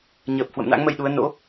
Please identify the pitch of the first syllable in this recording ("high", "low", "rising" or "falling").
low